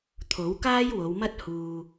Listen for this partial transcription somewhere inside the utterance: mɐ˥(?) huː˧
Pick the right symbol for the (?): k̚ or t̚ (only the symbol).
t̚